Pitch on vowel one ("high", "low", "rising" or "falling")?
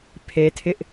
high